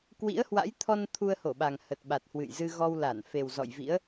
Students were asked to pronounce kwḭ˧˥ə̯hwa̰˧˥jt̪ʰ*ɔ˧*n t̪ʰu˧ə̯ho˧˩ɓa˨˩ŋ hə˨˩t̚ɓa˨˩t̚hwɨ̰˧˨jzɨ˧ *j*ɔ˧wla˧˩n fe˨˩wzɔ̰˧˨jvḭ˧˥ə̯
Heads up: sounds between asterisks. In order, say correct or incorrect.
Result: correct, incorrect: ɣ

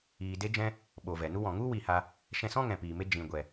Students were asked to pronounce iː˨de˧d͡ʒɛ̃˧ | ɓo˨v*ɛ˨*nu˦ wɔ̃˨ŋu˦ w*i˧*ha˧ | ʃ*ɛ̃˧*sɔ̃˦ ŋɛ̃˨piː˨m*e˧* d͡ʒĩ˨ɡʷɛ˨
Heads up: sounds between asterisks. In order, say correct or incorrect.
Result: correct, correct, correct, correct

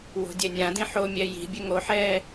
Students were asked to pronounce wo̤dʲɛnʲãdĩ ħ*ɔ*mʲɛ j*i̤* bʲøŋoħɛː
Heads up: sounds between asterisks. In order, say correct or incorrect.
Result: incorrect: o, correct

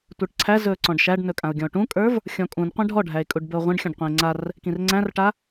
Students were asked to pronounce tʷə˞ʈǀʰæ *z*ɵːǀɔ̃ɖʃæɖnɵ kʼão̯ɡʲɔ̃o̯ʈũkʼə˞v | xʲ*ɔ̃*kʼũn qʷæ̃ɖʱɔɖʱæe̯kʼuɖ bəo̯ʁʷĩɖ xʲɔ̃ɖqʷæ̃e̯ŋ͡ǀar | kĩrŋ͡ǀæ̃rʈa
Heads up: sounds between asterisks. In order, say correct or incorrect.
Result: correct, correct

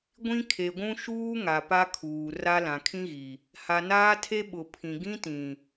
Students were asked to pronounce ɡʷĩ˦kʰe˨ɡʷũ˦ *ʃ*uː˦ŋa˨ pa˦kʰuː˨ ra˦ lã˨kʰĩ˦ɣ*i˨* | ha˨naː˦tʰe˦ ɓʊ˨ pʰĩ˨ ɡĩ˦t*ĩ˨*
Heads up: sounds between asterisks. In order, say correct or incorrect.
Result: correct, correct, correct

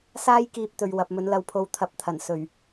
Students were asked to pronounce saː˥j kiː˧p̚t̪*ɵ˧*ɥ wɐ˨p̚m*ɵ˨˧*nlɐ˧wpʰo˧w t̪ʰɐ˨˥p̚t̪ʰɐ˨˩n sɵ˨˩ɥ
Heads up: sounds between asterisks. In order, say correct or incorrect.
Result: incorrect: ɵ˨, incorrect: ɵ˨˥

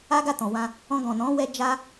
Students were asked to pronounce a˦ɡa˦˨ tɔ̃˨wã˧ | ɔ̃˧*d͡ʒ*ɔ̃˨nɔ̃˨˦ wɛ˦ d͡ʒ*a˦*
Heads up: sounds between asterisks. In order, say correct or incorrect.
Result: incorrect: ɡ, correct

